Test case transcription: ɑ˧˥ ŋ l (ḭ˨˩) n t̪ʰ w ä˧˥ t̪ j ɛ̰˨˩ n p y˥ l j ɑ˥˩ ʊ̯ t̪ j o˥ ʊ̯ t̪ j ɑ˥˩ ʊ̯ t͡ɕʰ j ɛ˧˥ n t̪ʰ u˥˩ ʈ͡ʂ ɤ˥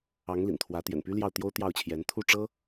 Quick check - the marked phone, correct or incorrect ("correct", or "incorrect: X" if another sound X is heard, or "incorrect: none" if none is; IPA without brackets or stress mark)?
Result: correct